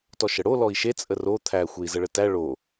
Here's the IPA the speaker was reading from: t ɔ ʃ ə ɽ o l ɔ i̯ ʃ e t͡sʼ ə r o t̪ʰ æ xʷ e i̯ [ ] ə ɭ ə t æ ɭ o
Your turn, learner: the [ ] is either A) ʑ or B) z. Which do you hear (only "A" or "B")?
B